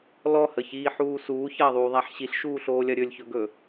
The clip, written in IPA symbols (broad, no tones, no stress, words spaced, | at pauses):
lɔhəçiːħuː suːçɐːðˤuːðˤæħ ɕiɬʃuːɬoːlʲɐ ɾʲɵlʲçɵɡɵ